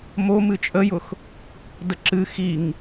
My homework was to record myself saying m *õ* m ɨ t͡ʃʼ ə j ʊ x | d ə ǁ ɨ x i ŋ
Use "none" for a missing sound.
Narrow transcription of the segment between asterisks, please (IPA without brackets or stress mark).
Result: o